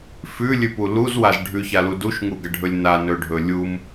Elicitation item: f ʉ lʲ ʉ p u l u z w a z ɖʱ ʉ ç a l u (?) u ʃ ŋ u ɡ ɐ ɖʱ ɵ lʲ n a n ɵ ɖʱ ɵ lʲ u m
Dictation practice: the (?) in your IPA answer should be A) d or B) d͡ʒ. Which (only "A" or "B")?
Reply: A